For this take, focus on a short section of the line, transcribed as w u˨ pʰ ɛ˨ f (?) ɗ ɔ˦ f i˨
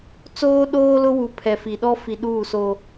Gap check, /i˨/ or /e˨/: i˨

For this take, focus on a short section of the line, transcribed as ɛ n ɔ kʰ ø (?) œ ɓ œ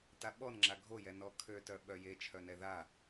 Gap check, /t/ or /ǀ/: t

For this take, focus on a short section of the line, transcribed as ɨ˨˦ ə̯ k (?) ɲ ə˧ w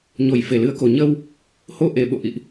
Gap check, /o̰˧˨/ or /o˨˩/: o˨˩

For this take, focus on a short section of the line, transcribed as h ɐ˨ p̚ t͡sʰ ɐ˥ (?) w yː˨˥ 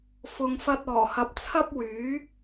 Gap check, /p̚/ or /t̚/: p̚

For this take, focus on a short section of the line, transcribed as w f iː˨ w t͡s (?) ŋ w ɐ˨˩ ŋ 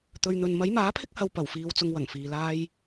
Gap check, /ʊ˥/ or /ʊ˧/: ʊ˧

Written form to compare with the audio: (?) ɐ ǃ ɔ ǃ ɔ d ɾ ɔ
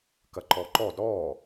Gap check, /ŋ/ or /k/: k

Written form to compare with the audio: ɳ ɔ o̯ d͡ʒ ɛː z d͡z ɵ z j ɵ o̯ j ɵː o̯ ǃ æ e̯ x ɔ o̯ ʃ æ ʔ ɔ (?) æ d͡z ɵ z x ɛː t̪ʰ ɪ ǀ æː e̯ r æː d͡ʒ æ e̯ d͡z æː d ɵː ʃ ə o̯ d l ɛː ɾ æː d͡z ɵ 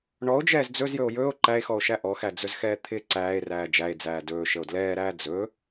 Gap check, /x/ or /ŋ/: x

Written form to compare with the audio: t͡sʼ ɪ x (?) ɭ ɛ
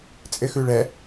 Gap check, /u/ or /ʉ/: ʉ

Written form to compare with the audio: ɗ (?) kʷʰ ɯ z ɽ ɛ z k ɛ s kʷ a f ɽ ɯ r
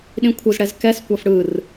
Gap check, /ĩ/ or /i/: ĩ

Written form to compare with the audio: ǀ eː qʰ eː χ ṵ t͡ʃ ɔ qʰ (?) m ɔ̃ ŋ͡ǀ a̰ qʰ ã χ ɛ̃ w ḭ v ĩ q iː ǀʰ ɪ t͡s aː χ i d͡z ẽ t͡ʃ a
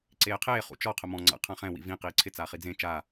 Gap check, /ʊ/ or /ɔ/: ʊ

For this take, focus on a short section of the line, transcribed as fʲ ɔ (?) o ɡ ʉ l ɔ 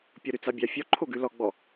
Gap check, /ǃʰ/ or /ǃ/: ǃʰ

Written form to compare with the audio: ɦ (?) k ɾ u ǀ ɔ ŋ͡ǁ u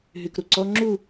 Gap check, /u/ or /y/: y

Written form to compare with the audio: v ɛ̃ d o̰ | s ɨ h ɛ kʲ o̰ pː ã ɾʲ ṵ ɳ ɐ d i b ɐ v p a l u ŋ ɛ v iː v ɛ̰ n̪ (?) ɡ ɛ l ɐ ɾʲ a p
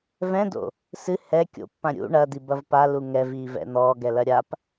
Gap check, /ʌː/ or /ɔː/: ɔː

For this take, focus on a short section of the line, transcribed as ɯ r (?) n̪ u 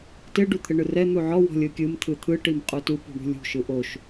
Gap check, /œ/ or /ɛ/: ɛ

